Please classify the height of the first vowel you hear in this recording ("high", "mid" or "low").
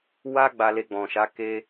low